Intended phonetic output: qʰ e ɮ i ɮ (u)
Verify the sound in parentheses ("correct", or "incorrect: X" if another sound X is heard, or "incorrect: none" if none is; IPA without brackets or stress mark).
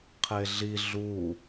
correct